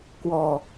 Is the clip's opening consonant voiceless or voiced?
voiceless